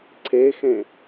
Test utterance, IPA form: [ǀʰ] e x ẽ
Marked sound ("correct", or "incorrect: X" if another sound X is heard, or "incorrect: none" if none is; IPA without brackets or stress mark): correct